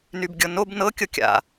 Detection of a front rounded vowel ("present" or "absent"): present